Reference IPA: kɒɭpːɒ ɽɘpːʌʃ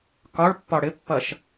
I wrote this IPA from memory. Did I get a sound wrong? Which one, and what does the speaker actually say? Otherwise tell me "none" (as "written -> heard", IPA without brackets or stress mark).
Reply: none